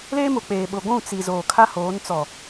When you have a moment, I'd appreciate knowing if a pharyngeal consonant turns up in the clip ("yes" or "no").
no